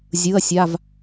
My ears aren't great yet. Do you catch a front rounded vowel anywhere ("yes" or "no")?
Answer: no